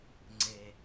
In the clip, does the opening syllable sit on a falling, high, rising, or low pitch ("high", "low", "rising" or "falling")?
low